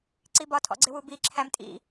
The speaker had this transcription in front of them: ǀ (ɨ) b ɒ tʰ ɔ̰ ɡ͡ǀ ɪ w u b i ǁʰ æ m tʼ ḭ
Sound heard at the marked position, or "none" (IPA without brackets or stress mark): i